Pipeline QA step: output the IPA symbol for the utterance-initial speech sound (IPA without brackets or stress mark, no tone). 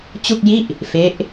t͡ɕ